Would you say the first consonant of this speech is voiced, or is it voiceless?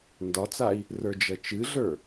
voiced